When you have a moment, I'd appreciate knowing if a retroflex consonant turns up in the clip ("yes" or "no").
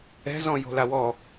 no